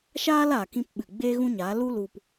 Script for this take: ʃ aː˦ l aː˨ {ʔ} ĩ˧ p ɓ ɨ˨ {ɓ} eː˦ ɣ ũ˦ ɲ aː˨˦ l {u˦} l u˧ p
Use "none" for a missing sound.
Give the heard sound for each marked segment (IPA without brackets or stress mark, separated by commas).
k, ɡ͡b, u˦